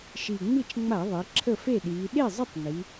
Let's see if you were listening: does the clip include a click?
yes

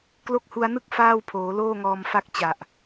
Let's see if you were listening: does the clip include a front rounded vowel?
no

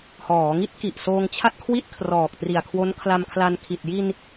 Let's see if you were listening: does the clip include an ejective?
no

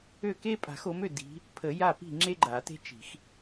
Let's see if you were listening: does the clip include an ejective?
yes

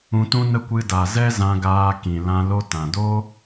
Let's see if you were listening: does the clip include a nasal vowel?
yes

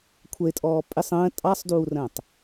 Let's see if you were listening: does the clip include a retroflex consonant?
no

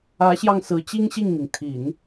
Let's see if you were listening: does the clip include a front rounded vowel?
no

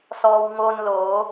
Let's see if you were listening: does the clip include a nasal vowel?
no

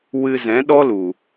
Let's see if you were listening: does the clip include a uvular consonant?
no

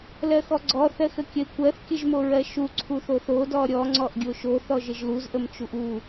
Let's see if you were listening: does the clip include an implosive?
no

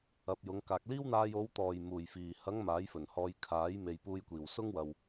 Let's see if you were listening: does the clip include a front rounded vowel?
no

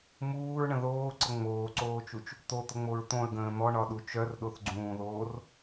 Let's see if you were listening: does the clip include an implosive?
yes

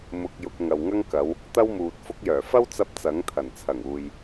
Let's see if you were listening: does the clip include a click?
no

